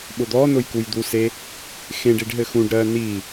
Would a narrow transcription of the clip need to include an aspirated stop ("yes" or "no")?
no